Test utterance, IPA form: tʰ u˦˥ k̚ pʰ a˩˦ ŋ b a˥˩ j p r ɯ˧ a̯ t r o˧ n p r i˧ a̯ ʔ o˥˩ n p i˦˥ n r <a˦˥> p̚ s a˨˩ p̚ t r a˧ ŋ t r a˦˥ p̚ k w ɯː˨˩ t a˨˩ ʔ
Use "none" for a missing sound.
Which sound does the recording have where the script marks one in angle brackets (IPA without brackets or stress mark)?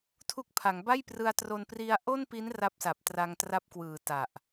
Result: a˦˥